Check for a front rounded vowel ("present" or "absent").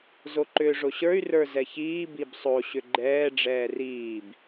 present